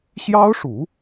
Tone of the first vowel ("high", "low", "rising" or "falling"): high